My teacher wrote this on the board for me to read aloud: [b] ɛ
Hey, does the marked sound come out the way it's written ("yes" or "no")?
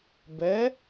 yes